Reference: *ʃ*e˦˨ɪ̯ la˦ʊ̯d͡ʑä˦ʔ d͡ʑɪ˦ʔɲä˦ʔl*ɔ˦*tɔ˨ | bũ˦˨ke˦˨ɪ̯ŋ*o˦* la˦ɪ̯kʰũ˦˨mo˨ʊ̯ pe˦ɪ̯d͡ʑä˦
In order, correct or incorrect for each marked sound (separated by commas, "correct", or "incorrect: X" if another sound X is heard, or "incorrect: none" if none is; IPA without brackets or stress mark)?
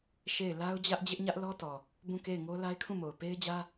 correct, correct, correct